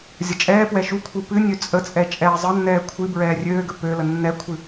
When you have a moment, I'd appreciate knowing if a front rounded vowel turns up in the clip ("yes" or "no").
yes